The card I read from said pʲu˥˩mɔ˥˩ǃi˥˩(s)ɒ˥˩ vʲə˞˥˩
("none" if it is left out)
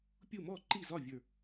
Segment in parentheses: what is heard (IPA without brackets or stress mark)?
z